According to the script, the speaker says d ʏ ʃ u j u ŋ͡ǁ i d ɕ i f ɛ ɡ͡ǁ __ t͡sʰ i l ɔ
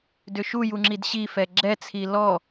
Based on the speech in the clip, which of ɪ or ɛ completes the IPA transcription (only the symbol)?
ɛ